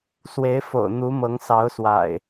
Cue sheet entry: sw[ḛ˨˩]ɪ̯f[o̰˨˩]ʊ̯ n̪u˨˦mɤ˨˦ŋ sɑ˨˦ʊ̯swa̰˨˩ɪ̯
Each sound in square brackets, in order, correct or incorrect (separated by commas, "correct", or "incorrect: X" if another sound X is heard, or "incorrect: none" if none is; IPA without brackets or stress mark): incorrect: e˨˦, correct